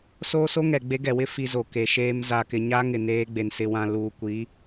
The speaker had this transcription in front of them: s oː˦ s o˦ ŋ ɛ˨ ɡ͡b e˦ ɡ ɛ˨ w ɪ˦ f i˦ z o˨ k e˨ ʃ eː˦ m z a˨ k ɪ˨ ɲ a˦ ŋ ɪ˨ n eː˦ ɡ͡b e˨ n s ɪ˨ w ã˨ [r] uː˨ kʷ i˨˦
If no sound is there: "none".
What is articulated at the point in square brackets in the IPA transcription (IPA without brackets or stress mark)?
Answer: l